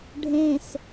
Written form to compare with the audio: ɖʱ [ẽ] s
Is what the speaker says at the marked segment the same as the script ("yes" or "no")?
yes